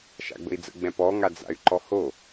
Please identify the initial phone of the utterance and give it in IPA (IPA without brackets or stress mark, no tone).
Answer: ʃ